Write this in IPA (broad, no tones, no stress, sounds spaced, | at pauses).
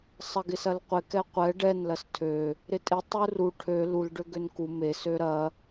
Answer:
sˤ ɐ ɡ ɪ s ɐ l qʷ ɪ k ɛ qʷ ɛ ɖ ɛ n l ɐ s tʰ ø | ɾ ɪ tʼ ɪ tˤ u r u ʈʰ ø l u l ɖ ø ɡ ø n k u m e s ø ɾ ɐ